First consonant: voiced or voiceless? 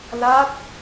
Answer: voiced